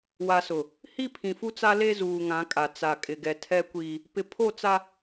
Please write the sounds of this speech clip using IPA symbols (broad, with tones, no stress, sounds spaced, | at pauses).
w a˨ s ʊ˨ | h i˦ pʰ ĩ˨ f u˦ t͡s a˦ l e˦ z uː˨ ŋ ã˨˦ kʼ a˨ t͡s a˨ kʼ ɪ˨ ɡ ɛ˨ tʰ ɛ˦ kʷ iː˦ | p ɪ˨ pʰ o˦˨ t͡s a˦